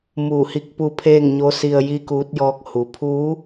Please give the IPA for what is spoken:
m uː˧˩ h i˧ k̚ p u˧ pʰ eː˥˨ ŋ ɲ o˧˥ s i˧ ə̯ j i˥˨ k uː˧˥ t̚ j ɔː˧˥ k̚ h u˩ pʰ u˧˥

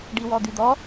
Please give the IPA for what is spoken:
ɖ i w ɔ d̪ y d̪ ɔ

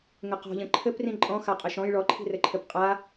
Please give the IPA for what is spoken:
ŋ ɘ q ɔ̤ ʎ ə̃ ǃʰ ɘ p r ĩ ǃʼ ɔ̃ x a qʼ ə ʃ ɔ̃ j ɭ ɔ ǃʰ i̤ r ɘ ǃʰ ɘ p qʼ a

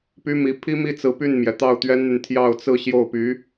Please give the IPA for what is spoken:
p y˥ m i˧˥ pʰ i˥ m i˥˩ t͡s ɹ̩˧˥ p y˥˩ n m j ɛ˩ t̪ ɑ˥˩ ʊ̯ t̪ ɥ ɛ˥ n n̪ y˨ n t̪ʰ j ɑ˥˧ ʊ̯ t͡s ɹ̩˥˧ ɕ j o˥˩ ʊ̯ p y˧˥

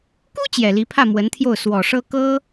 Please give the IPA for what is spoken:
k u˥ t͡ɕ j ɛ˨˩ l i˧˥ pʰ ä˥˩ m w ə˧˥ n t̪ʰ j o˥˩ ʊ̯ s w ɔ˨˩ ʂ ɤ˥ k ɤ˥

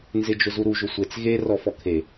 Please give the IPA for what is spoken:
n z ɪ d͡ʒ ʊ z u ɾ u ʒ ʊ sʷ e t͡s ɣ e r ɔ f ɔ kʰ e

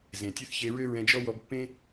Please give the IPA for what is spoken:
z ẽ˩ tʲ ø˥ θ ç e˧ ɹ ø˥ ɹ ɛ̃˧ d͡ʒ ɔ˥ w ɔ˧ b pː ẽ˥

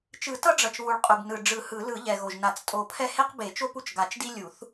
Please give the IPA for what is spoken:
t͡ʃ ɯ˨˩˦ t ʌ˦ ɖ͡ʐ ʌ˨ t͡ʃ β u˨ ɭ qʼ u˨ b n ɯ˨ ɖ͡ʐ ɯ˨˩˦ h ɯ˨˩˦ l ɯ˨˩˦ ʎ ɛ˨ ɣ o˨ ʒ n a˨˩˦ t͡s tʼ o˨˩˦ pʰ ɛ˦ h e˦ q b e˨˩˦ t͡ʃ o˦ p u˦ t͡ʃ ɡ a˨˩˦ t͡ʃ d i˦ lʲ u˨˩˦ θ

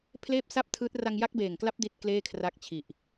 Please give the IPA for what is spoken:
pʰ l eː˥˩ p̚ s a˥˩ p̚ tʰ ɯː˦˥ t̚ r a˧ ŋ j a˦˥ k̚ b eː˨˩ ŋ k l a˦˥ p̚ d i˥˩ t̚ k l eː˥˩ kʰ r a˦˥ k̚ t͡ɕʰ i˨˩ ʔ

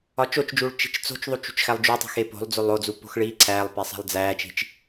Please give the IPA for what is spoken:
ɒ t͡ʃ o t͡ʃ d͡ʒ uː ɭ t͡ʃ i̤ t͡ʃ t͡s o̤ t͡ʃ ðˤ u t͡ʃ ṳ t͡ʃ x æ lˠ d͡ʒ u tˤ i̤ x e p o̤ lˠ d͡z o lˠ o d͡z u p o̤ x ɭ iː ǀʰ æː lˠ p e sˤ æ̤ lˠ d͡z æː t͡ʃ i̤ t͡ʃ

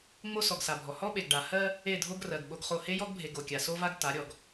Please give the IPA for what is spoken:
ŋ͡m o˦ s ɔ˨ ɡ s a˨ bʱ ɔ˨ h ɔ˦ ɓ e˨ ɡ ɖ a˨ h ɜ˦ | e˦˨ dʱ o˦ ɡ r ɜ˨ ɡ ɓ o˦ ɡ χ o˦˨ h e˦ j ɔ˦ ɡ bʱ e˨ ɡ o˨ kʲ a˨ s o˦ v a˦ ɡ t a˨˦ ɾʲ ɔ˨ ɡ

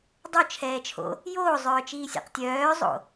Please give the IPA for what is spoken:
dˤ o t͡ʃʰ ɛː t͡ʃʰ o̰ | j oː zˤ œː t͡ʃ iː sʲ ɛ̰ q tʲ œː zˤ o̰

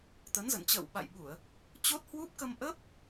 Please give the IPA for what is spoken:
t̪ ə˨˦ n z ə̰˧˨ n t͡ɕ ə̰ː˧˨ w ɓ a̰˧˨ j ɓ u˧˩˨ ə̯ | t͡ɕ o˦˥ t̚ h w u˦˥ p̚ k ə˧ m ʔ ə˦˥ p̚

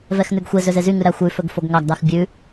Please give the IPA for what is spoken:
v ɛ x n ʉ ɡ xʷ e z ø z e z y ŋ ʉ ɾ æ xʷ ʉ f ɵ ɡ f o ɡ ŋ ɑ ɡ d ɑ x bʲ ʉ

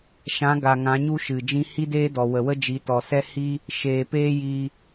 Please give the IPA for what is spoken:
ʃ ã˨˦ ɡ a˨ ŋ ã˨˦ ɲ u˦ ʃ ɨ˨ d͡ʒ ĩ˦ h i˦ d eː˦ d ɔ˨ w ə˨ w ə˦ d͡ʒ i˨˦ t ɔ˨ s ɛ˦ h i˦ | ʃ eː˨ p eː˦ j i˧

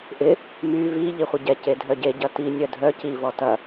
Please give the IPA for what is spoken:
ʔ ɪ | m y v i ʎ i χʷ ɪ ɟ ɛ c e dʱ œ ɟ e ɟ ɐ t i nʲ œ dʱ œ c i v ɔ t ɐ

